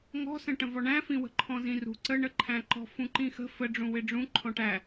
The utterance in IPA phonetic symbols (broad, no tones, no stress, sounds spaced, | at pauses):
ŋ ɔ̤ s ə̃ ʈ ə̃ v ɔ ɳ æ̃ f ĩ w ə̤ ǃʰ ɔ̃ z ĩ r ṳ ǀ ə ɳ ə ǃʰ æ̃ ǃ ɔ̤ f ũ ǃ ĩ x ə̤ f ə ɖ͡ʐ ũ w ɪ ɖ͡ʐ ũ ǃʰ ɔ̃ ʈ æ